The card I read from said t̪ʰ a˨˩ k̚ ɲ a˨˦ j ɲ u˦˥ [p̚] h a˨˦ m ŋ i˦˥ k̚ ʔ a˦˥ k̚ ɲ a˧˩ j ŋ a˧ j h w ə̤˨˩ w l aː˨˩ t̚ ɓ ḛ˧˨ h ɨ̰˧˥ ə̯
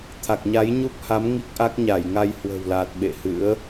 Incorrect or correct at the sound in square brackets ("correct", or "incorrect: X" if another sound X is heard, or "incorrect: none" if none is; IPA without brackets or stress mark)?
correct